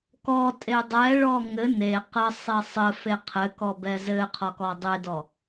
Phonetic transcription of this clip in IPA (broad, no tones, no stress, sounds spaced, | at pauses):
k ɔ tʼ e dˤ ɛ ɭ ɔ ŋ ɘ n e q ə sˤ e sˤ ɘ f e qʰ ɘ k ɔ b ɛ z ɘ qʰ ɔ k ɔ dˤ e d ɔ